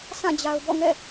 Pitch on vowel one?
falling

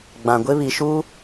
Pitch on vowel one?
low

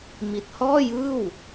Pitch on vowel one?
low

